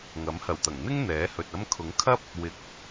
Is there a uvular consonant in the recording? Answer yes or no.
no